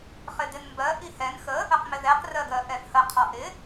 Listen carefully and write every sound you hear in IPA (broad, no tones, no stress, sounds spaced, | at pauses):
χ ɪ d ɪ n m b ɜ ʔ i h ɛ n x ə | ə q m ɪ ð ɛ q r ɜ ɡ ɜ ʔ ɛ f h ə qʰ ɒ ʔ ɪ